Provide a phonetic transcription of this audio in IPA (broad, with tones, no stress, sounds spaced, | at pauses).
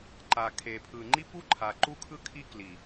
ǃ a˨ kʰ e˨ pʰ ɯ˨ ŋ͡ǃ i˦ p u˦ ǃʰ a˨ ǃ u˦ kʰ ɯ˦ kʰ i˦ k l i˨